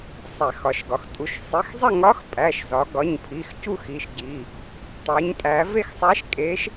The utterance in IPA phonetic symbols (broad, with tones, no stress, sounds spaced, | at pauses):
sˤ æ˧˩˧ x ɒ˩˧ ʃ ɡ ɒ˩˧ x tʼ u˩˧ ʃ sˤ i˩˧˩ x zˤ e˥˨ ŋ ɒ˧˥ x pʼ æ˩˧˩ ʃ z ɒ˩˧ ɡ ɒ˩˧˩ ɲ pʰ i˩˧˩ x c u˥˨ x i˩˧˩ ʃ ɟ i˩˧˩ | tˤ e˩˧ ɲ tʼ æ˩˧ v e˥˨ x sˤ æ˧˥ ʃ kʼ e˧˥ ʃ